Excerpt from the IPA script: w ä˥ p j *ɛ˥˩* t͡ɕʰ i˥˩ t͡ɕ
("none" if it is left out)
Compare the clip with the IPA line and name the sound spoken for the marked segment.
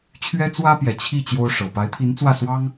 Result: ɛ˨˩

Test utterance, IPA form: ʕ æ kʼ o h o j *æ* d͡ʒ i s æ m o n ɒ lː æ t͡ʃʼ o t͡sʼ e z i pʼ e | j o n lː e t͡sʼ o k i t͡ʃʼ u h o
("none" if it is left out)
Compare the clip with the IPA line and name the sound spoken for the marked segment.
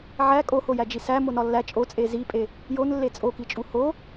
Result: æ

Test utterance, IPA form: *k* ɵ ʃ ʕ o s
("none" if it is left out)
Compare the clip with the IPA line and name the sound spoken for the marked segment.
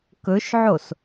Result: k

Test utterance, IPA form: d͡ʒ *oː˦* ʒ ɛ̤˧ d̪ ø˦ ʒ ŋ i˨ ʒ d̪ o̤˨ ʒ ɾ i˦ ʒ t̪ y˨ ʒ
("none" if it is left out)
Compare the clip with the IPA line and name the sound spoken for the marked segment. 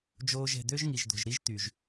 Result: oː˦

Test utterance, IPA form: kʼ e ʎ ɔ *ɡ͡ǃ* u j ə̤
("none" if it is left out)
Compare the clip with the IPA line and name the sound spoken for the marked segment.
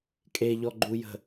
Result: ɡ͡ǃ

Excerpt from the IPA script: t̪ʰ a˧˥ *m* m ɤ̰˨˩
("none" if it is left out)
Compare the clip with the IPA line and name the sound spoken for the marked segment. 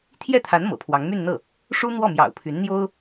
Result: n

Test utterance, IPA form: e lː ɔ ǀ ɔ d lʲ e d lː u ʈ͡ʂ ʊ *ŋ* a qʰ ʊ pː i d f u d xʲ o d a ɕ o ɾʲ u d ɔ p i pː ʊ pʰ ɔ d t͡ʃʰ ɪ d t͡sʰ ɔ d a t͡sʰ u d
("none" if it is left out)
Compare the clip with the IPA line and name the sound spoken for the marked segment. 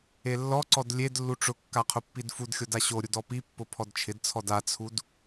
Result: kː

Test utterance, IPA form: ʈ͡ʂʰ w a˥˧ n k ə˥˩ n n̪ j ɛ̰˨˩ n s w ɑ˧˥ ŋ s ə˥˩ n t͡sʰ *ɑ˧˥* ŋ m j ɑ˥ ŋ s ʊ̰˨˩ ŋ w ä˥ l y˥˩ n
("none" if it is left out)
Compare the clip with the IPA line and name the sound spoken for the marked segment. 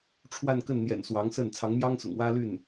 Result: ɑ˧˥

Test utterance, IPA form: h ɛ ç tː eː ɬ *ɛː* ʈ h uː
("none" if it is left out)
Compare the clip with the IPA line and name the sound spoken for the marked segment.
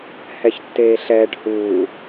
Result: ɛː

